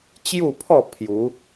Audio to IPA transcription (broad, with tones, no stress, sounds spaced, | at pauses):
t͡ɕ j u˥˧ pʰ ɔ˥˧ pʰ j u˨˦